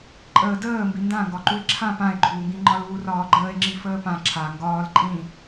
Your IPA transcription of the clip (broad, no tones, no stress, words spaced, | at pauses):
ǃʼəːdəː mbindãŋɡɒǃue̯ ǁʰã pãe̯ɡ͡ǃuːŋɡĩ ŋ͡ǃɒluːrɒːɡ͡ǃəːe̯ ŋ͡ǁifəːpã ǁʰa ŋɡɒːl ǃʼĩ